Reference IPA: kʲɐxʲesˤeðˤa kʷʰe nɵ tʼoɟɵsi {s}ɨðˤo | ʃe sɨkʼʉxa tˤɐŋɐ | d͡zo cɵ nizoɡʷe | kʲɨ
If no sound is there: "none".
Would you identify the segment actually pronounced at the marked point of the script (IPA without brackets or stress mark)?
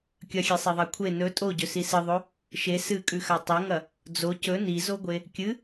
s